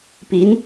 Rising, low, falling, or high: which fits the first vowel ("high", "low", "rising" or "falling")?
rising